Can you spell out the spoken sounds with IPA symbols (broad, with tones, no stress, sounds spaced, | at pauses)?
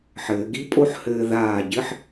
ħ ɘː˩˧ ɡ i˥˧ pʼ o˥˧ ħ h ɘː˧ ð aː˧˩ ɟ ɘ˥˧ ħ